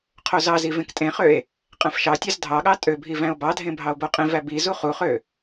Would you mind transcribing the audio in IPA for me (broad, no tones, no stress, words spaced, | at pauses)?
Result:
qʰozɑzi vẽktʼẽχøe̯ | qʼæ̃fʃɑtʲɑz dʱɑɠɑ tʼøbʱi væ̃o̯bɑdʱẽ bʱɑo̯boqʼẽvæ bizu χuχø